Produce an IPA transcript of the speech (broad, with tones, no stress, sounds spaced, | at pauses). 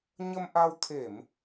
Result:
ɲ ə˧ m ʔ a˧ w t̪ʰ e˧˩˨ m